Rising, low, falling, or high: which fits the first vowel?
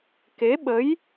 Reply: rising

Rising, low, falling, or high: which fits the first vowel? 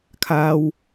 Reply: low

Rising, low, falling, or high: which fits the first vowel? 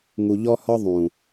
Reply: low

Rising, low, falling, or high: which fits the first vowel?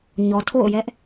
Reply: low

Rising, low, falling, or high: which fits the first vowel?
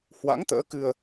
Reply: rising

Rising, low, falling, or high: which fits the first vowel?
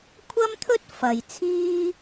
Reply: high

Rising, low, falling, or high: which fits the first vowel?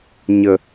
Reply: low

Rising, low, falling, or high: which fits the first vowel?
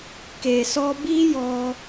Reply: low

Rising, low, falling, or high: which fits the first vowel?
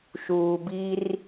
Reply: low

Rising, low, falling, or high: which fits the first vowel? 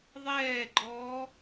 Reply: falling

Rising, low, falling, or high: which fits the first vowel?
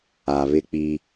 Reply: low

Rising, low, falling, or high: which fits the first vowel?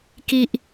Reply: high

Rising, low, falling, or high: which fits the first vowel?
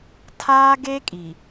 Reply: high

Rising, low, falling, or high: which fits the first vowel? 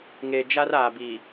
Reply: low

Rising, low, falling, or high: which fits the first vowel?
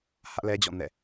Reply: high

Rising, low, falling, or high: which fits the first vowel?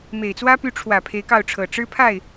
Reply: low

